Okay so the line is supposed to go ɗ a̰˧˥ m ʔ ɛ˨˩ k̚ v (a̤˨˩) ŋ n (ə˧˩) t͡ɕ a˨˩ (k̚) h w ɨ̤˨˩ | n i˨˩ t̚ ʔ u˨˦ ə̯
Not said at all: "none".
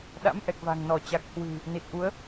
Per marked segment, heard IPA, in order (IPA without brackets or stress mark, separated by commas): a̤˨˩, ɔ˧˩, k̚